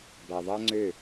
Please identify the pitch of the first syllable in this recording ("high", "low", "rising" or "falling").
low